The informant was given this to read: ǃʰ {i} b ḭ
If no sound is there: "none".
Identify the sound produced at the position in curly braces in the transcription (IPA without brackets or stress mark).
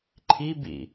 i